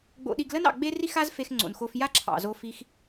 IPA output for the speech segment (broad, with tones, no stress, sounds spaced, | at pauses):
ɡ͡b o̰˧ ɗ i˧ ɡ l ə˦ n ɑ̰˨ ɡ͡b e˦ r i˦ x a˦ z f e˧ x ŋ͡ǀ o̰˨ n x o˧ f j a˦ ǁʰ ɑ̰˨ z o˧ f i˧ x